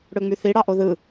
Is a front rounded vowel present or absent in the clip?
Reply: present